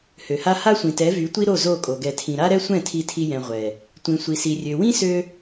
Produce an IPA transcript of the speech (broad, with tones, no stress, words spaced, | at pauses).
hø˨ha˦ ha˦sʷĩ˨tɛ˨˦ vy˨˦tʷi˦ɾo˦˨ zo˦˨kʼo˨ ɡɛ˧tʰĩ˧ ɾa˦ɾɛ˦sʷɛ̃˦˨ tʰi˧tʰi˧ jɛ̃˨ ʁʷɛ˨ | tʷĩ˨sʷi˨si˨ rʲø˨wĩ˦sø˧